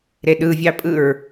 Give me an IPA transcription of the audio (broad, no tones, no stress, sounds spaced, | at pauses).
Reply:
ɾ e ɗ ɯ vʲ ɑ pʼ ɯ ɹ